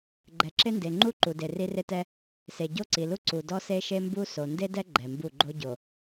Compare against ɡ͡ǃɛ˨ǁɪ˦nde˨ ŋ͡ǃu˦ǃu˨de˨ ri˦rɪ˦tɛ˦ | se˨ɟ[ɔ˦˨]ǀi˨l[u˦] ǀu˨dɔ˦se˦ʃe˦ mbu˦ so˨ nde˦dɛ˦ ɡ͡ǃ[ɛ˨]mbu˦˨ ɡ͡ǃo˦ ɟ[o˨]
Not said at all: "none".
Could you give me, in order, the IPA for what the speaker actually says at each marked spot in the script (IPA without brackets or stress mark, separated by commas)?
o˦˨, u˦, ɛ˨, o˨